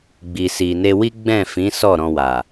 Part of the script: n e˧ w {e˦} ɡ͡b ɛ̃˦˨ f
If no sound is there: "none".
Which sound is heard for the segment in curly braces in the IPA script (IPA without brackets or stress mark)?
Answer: i˦